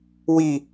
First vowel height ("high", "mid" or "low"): high